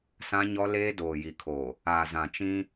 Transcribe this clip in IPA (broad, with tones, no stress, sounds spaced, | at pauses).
s ã˦ ɲ ɔ˦ l eː˦ d oː˨ j i˨ kʰ oː˨ | aː˨ z ã˨ t͡ʃ ĩ˦